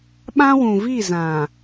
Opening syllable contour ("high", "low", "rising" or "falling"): high